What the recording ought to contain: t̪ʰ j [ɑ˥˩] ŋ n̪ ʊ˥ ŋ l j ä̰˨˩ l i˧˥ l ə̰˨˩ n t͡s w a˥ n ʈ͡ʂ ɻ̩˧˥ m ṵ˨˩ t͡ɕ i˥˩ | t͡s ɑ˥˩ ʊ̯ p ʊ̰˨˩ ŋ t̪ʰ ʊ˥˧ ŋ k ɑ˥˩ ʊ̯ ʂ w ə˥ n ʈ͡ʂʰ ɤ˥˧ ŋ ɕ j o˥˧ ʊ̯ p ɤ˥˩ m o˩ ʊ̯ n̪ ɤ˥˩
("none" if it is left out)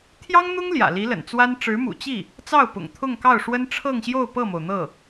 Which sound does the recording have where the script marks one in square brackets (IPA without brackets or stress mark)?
ɑ˥